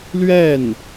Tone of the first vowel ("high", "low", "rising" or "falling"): falling